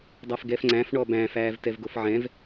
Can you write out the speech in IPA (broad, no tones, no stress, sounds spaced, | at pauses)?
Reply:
dˤ a f ɡ ɛ f ŋ͡ǀ æ̃ f ɳ ɔ b æ̃ f æː v t ɛ v ɡ o f ʕ ɛ̃ v